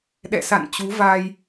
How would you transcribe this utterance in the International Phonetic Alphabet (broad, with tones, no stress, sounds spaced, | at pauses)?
ɗ ɛ̰˧˨ s a̰˧˨ n t͡ɕ u˨˦ v a˧ j